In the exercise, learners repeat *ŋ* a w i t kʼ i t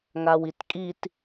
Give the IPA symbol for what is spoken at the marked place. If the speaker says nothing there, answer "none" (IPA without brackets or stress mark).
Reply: ŋ